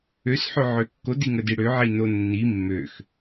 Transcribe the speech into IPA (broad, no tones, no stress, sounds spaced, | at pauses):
ø s ħ ø ʕ ø kː o d i ŋ ə d i ɽ ø ʕ i n o nː i mː ø x